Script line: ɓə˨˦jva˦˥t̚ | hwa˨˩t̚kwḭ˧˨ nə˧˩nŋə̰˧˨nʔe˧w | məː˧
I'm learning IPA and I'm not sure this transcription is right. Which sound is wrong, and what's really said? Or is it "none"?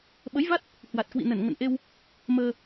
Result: none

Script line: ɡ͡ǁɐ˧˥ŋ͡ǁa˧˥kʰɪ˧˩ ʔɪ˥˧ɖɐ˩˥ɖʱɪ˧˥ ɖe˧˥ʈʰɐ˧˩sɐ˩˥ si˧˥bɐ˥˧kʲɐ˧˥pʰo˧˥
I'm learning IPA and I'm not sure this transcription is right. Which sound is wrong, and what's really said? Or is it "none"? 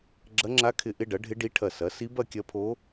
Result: e˧˥ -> i˧˥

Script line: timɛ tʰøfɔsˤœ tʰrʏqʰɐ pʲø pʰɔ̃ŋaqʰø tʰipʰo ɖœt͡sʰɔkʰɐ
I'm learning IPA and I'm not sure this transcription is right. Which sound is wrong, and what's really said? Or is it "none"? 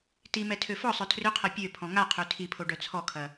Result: none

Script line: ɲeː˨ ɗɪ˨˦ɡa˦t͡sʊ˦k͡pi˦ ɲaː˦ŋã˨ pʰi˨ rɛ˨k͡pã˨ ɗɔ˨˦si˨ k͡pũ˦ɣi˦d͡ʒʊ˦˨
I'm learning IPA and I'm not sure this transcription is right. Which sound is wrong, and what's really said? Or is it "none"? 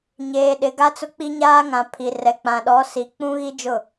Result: none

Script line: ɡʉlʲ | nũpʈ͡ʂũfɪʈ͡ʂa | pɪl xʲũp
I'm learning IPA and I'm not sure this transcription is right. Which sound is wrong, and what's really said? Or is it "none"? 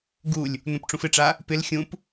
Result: ʉ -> u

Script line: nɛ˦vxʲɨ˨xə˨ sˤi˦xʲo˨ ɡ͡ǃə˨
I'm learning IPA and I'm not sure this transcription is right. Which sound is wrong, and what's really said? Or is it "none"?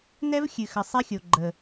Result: none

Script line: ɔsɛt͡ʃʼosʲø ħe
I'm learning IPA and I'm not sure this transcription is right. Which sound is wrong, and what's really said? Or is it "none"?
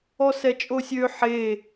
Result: none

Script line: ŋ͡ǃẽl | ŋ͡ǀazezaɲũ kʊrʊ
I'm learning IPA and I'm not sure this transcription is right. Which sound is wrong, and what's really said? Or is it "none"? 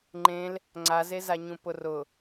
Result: k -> p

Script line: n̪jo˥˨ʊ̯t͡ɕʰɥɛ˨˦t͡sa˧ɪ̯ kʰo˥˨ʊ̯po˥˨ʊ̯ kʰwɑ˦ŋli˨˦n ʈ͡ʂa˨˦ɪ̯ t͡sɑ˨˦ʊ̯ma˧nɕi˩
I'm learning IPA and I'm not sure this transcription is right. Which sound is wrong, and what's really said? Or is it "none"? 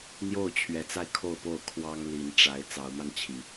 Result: ɕ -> t͡ɕʰ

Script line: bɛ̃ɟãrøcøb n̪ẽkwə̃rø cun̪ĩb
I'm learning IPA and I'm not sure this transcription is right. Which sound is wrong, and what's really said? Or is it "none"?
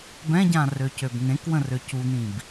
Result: none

